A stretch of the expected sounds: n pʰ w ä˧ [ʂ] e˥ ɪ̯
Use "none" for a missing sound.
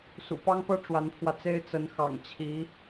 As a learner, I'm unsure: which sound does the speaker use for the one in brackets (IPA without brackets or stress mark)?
t͡s